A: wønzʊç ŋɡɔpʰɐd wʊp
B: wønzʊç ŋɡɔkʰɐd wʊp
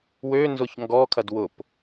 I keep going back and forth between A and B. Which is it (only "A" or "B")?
B